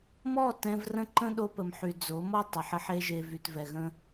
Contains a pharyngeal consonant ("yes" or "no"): yes